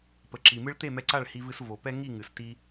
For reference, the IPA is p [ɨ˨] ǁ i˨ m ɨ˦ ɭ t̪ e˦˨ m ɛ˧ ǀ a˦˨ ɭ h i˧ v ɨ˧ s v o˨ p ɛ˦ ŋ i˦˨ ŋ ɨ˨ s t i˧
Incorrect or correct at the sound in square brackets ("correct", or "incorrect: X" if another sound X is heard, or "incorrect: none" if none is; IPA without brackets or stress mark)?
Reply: incorrect: ə˨